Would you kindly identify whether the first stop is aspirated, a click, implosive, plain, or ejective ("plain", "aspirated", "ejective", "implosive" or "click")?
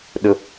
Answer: implosive